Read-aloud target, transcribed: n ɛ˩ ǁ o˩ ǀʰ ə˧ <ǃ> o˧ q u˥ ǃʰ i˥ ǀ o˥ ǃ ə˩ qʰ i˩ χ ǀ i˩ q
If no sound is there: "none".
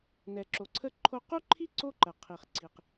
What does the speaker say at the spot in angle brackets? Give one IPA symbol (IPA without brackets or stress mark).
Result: ǃʰ